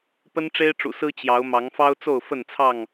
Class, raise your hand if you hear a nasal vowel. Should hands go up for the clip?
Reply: no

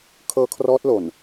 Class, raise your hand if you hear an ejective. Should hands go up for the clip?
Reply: no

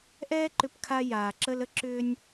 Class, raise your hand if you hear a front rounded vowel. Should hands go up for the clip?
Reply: yes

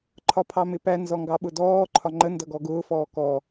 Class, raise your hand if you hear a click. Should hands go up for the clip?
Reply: yes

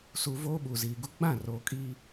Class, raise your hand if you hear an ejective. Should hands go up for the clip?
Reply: yes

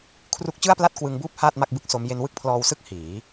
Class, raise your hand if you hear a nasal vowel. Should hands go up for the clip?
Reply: no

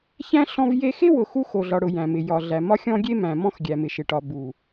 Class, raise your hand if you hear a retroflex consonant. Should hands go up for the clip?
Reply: yes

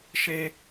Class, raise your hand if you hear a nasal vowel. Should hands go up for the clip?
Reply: no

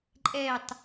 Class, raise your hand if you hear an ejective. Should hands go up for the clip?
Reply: yes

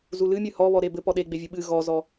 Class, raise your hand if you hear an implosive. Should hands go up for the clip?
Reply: yes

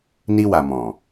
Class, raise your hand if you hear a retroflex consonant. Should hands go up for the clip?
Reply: no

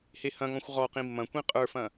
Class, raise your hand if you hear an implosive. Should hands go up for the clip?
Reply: no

